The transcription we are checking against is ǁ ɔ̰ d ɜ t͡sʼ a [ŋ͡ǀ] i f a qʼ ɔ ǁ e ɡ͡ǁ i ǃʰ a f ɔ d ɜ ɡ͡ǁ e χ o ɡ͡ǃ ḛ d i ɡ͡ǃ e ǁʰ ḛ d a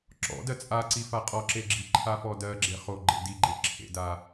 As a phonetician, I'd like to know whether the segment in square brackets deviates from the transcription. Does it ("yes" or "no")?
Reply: yes